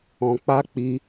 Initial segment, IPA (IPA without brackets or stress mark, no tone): ɔ̃